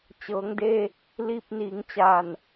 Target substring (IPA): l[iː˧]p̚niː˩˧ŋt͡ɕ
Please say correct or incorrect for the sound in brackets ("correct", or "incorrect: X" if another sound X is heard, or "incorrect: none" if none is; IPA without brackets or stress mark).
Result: correct